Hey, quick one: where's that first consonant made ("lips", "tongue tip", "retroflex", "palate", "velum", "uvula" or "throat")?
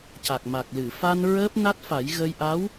palate